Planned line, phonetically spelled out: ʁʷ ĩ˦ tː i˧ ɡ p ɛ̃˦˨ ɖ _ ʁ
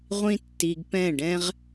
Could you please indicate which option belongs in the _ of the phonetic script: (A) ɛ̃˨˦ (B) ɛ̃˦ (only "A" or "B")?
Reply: B